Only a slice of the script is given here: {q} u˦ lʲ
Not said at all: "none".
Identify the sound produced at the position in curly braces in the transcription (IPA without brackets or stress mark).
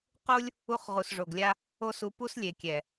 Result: q